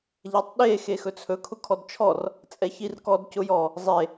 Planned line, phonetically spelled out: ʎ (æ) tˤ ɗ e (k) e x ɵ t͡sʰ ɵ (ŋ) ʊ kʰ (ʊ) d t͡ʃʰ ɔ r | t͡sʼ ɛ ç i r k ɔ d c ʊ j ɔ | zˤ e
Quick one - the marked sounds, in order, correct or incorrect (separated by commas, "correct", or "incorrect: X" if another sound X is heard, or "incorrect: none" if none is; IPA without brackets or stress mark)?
correct, incorrect: x, incorrect: kʰ, incorrect: ɔ